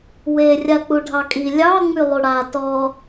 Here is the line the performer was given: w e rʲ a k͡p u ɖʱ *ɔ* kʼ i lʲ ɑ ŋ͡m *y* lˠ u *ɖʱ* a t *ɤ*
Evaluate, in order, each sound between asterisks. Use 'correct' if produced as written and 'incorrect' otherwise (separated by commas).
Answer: incorrect, correct, incorrect, incorrect